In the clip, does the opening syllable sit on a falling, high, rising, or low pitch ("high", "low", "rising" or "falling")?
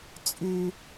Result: low